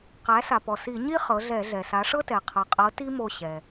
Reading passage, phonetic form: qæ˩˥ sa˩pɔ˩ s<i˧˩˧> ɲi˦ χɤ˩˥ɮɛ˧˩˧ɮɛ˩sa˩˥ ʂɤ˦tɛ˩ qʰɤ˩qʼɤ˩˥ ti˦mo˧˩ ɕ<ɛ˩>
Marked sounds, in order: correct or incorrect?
correct, correct

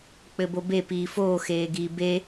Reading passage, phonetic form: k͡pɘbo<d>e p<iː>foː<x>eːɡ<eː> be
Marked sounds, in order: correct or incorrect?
incorrect: b, correct, correct, incorrect: iː

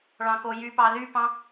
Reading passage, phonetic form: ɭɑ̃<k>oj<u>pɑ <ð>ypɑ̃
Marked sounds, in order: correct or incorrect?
correct, incorrect: y, correct

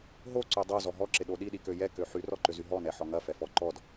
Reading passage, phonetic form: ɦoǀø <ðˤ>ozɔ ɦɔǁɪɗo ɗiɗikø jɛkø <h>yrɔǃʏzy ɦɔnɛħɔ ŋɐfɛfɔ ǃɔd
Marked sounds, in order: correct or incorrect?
incorrect: dˤ, incorrect: ħ

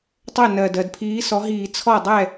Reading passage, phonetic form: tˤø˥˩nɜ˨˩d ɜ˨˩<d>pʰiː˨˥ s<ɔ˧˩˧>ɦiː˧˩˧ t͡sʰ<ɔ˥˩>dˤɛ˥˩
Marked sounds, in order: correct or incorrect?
correct, incorrect: ɔ˨˥, correct

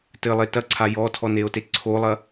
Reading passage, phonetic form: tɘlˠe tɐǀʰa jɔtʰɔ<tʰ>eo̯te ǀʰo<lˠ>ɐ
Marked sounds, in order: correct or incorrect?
incorrect: n, correct

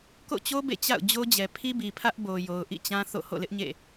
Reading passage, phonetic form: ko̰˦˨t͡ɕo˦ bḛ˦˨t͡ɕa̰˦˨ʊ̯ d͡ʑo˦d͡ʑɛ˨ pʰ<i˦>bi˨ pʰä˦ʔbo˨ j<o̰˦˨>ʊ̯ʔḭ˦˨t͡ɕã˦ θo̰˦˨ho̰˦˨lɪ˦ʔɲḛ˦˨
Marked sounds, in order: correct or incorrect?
correct, incorrect: o˨

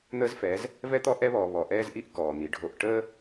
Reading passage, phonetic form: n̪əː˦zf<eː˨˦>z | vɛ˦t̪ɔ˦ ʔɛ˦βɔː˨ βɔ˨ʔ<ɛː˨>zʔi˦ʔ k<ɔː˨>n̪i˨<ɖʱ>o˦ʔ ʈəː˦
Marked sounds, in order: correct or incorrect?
incorrect: ɛː˨˦, incorrect: ɛː˦, correct, correct

